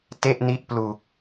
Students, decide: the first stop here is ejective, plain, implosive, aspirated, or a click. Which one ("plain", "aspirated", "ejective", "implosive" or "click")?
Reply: plain